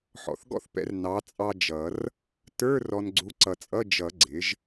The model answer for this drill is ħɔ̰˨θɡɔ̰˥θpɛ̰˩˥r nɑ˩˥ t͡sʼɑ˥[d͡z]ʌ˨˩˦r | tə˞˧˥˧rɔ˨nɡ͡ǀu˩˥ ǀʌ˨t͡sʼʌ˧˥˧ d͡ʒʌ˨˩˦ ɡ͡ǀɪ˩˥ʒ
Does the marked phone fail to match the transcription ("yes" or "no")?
yes